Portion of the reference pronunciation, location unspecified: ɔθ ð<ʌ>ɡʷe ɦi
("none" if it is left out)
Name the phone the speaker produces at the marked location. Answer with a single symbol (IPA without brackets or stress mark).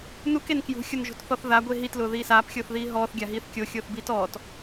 a